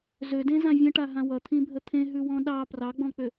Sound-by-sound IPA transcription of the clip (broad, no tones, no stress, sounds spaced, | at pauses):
z ø d ẽ z ã vʲ ə̃ ʈ a ɦ ã w ʌ t̪ʰ ĩ bʱ ə t̪ʰ ẽ ɦ ʉ w ɔ̃ ɗ ɑ p r ɑ ɡ͡b ɔ̃ k͡p ø